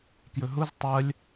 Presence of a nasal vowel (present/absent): absent